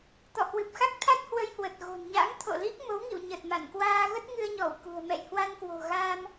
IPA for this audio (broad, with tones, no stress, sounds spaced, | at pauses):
t̪ ɔ̰˧˨ h w ɨ˨˩ p̚ x a˦˥ k̚ t̪ʰ a˦˥ t̚ h w ə˧ j h w ə˨˩ t̚ ɣ o̤˨˩ n ɲ a̰˧˥ ŋ t̪ʰ o̰˧˨ l i˦˥ k̚ m o˨˦ w ŋ ḭ˧˨ w ɲ ə˨˩ t̚ m a˧˩ n k w aː˧ ɣ ə˦˥ t̚ ŋ ɨ˧ ə̯ ɲ ɔ˧˩ w k ṳ˨˩ ə̯ m ɛ̰˧˨ j h w a˧ n k w o̤˨˩ ɣ aː˧ m